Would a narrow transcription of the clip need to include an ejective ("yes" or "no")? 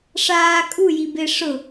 yes